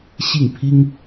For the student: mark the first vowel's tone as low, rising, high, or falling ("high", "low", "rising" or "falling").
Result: falling